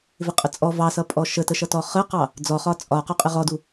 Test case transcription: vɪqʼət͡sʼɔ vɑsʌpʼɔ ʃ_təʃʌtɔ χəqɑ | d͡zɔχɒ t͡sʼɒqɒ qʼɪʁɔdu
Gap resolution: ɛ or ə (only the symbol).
ə